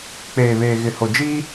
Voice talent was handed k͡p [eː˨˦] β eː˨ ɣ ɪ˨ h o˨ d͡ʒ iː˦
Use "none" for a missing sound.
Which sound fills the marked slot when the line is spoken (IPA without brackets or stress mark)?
eː˨